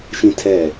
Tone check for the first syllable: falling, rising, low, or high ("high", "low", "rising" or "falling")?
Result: high